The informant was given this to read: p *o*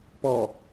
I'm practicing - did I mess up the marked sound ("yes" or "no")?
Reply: yes